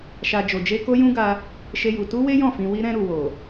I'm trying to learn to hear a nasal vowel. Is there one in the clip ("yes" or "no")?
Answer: yes